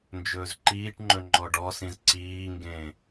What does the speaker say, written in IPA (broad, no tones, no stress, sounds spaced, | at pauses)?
n d͡ʒ ɵː z ǃ iː ʈ ŋ͡ǃ ɵ ŋ͡ǃ ɔ ɖ ɔ s ĩ z ǀ iː ŋ ɡ ẽ